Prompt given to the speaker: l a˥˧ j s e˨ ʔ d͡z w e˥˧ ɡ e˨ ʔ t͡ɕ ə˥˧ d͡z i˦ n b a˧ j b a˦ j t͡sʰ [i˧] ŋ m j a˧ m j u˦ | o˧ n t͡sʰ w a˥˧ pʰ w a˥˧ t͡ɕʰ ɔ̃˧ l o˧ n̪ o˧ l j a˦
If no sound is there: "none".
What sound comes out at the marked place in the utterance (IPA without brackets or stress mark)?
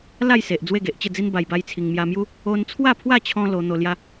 i˧